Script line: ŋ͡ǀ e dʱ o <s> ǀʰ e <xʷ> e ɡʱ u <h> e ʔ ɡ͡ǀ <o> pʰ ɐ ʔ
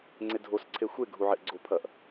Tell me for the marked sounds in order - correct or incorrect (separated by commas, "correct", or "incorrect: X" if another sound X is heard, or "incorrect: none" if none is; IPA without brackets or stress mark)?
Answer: correct, correct, incorrect: ʕ, correct